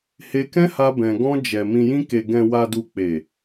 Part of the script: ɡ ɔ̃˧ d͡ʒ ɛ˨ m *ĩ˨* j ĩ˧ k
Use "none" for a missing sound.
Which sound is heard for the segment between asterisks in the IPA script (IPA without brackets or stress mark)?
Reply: ĩ˨